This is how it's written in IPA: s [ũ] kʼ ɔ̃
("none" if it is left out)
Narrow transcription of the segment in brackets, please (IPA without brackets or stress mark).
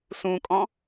ũ